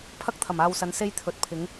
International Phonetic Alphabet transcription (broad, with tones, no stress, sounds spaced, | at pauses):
pʰ ɐ˥ k̚ t̪ʰ ɐ˨˩ m aː˧ w s ɐ˨˧ n s e˥ j t̪ʰ ɵ˨˥ t̚ pʰ ɪ˨˥ ŋ